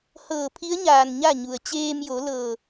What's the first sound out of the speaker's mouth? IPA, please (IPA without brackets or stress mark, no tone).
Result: h